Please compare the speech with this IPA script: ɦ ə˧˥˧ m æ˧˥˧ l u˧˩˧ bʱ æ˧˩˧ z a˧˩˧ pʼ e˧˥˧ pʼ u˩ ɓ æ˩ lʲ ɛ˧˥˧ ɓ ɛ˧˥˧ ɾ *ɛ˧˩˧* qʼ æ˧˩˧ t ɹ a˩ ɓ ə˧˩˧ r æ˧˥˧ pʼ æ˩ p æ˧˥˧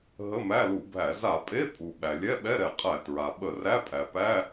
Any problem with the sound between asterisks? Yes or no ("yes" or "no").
no